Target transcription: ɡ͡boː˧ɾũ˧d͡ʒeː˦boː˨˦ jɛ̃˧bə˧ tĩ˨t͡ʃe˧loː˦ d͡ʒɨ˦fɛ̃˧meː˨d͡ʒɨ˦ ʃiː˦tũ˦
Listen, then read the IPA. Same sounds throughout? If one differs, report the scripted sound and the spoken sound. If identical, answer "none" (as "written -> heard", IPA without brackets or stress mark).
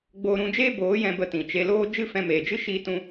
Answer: none